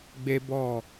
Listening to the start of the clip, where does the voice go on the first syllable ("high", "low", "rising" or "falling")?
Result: high